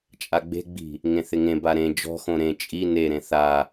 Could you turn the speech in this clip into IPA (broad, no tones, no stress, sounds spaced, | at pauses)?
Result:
t͡ʃʼ a ɡ͡b e̤ ɡ͡b i̤ | ŋ ẽ θ ɪ ŋ ẽ b a ɾ ẽ d͡ʒ ɔ̤ x õ ɾ ẽ t͡ʃʼ i n e ɾ ẽ θ a